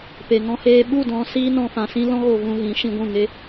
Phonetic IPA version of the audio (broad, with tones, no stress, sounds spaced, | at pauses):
p e˨ ŋ ɔ̃˧ h eː˧ ɓ u˦˨ d ɔ̃˧ s iː˦ n ɔ̃˧ f ã˧ s ĩ˦ l ɔ̃˦ ɣ o˧ v ũ˧ ɣ ĩ˨˦ ʃ ĩ˧ ɡʷ ũ˦˨ ŋ e˦